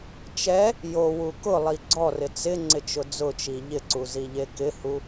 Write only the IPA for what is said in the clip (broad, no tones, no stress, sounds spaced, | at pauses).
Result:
t͡ʃ ɛ | j o w u k ʊ lˠ i ɡ͡ǀ ɔ r ɪ t͡s ɪ ŋ͡ǀ ɪ t͡ʃ ʊ d͡z ʊ t͡ʃ i ʎ ɪ ǀ u z i ʎ e k ɪ h u